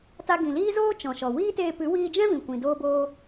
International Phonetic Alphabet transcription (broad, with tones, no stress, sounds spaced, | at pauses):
t a˧ ɡ ĩ˨ l iː˦ z oː˦ t͡ʃ ɔ̃˨ ʃ ɔ˨ w iː˦ t eː˧ p ɨ˨˦ w iː˧ d͡ʒ ɛ̃˦ v ĩ˨ kʷ ĩ˨ d oː˧ b oː˧